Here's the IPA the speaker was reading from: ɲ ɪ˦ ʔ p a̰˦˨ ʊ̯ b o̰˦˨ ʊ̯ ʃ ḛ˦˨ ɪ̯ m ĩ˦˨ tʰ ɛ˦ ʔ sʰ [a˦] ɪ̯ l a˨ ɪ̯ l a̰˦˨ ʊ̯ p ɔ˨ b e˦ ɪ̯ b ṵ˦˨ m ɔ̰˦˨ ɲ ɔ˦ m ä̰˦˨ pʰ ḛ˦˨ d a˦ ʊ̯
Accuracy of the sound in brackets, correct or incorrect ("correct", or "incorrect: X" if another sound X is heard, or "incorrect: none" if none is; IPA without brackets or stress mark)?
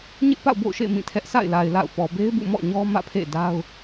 incorrect: a̰˦˨